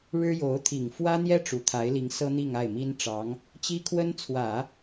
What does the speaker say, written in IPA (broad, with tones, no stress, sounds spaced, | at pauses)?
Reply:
ɻ ɻ̩˥ j o˧˥ ʊ̯ t̪ʰ i˨˩ ŋ f w ä˥ n̪ j ɛ˥ ʈ͡ʂ u˨˩ t̪ʰ a˧˥ ɪ̯ l i˧˥ ŋ s ɤ˥ n̪ i˥˧ ŋ a˥˩ ɪ̯ m i˥ n ʈ͡ʂ ɑ˧˥ ŋ | t͡ɕ i˥ kʰ w ə˥ n t͡sʰ w ä˨˩˦